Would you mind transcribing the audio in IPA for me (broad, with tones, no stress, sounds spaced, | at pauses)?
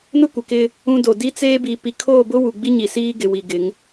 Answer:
n ʊ˦ kʷ ɪ˨ k ɪ˦ | ũ˦ d o˨ d i˦ t͡s eː˦ b i˨ p i˨ kʰ oː˦˨ b ʊ˦ w u˨ ɡ͡b i˦ ɲ i˨ s iː˦ ɡ ɪ˨ w i˨ ɡ ɪ˨˦ ŋ